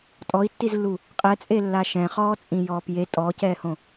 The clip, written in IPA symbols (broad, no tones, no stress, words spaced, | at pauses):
tʼɔi̯tːizlːu | qʼɛt͡sʼelːa ʃɛ̃χɔːt͡sʼĩjɔːp je tʼɔːcɛːhõ